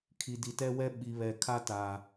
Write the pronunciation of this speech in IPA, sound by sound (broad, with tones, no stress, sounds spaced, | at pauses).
kʰ i˨ d i˨ t ɛ˦ w ɛ˦ ɓ i˨ β ɛ˨ kʰ a˦ t a˨